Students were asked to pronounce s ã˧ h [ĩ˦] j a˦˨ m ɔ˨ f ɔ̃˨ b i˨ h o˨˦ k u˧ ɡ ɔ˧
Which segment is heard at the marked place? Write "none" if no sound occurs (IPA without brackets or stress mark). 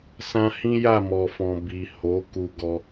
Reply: ĩ˦